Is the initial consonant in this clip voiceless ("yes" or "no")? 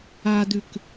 no